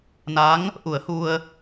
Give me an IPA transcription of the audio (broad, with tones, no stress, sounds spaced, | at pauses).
n a˧˥ ŋ | ʔ u˨˩˦ ə̯ h u˧ ə̯